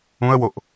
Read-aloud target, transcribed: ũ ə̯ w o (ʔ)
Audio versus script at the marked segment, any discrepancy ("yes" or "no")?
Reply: no